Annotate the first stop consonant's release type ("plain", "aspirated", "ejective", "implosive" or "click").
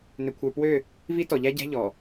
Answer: aspirated